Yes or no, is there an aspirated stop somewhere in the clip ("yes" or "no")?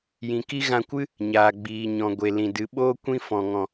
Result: no